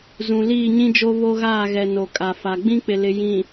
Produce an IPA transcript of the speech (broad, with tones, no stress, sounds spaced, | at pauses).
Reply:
z ũ˨ l iː˦˨ ɲ ĩ˦ d͡ʒ o˦ β o˦ ɣ aː˦˨ ɣ ɛ˨ n o˨ kʼ a˨ f a˨ ɡ͡b ĩ˦ k͡p ɪ˨ l ɪ˨ j ĩ˨